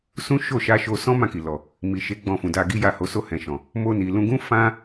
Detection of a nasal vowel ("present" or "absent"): present